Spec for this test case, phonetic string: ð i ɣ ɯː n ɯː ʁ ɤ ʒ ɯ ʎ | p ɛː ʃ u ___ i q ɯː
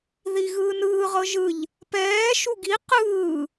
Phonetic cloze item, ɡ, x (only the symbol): ɡ